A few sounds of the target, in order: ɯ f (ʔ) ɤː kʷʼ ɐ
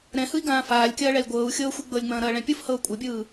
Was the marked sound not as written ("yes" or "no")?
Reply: yes